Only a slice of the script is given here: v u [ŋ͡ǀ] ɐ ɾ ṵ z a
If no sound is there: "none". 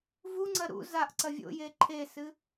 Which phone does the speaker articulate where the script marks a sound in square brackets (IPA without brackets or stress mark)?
ŋ͡ǀ